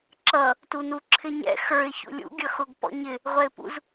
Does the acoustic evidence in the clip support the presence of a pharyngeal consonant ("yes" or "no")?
no